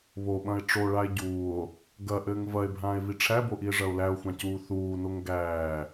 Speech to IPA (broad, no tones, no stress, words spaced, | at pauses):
βoɓɐ̃e̯ ʈ͡ʂoɭae̯ ɟuːo̯ | ɡɐʔɘːŋ vɐe̯bʱãːe̯vi ʈ͡ʂʰæboʔie̯ʐɐo̯ læo̯xʷãcuː θuːnoŋ ɡæː